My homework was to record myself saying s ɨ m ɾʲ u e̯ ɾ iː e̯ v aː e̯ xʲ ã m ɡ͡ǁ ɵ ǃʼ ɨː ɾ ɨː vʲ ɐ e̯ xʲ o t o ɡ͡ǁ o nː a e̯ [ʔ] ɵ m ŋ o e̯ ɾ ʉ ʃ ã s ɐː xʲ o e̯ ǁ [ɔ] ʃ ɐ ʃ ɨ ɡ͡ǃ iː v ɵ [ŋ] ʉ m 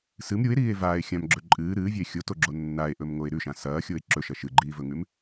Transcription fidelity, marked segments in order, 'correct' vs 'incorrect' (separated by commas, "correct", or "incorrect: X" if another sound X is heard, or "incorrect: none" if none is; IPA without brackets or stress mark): correct, incorrect: ɵ, correct